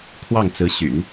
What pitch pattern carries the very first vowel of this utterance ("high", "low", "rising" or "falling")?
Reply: falling